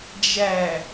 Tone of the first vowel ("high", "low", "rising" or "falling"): low